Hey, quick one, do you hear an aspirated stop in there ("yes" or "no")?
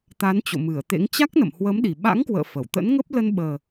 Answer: no